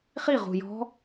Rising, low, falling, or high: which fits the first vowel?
falling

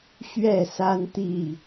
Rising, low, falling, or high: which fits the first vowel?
falling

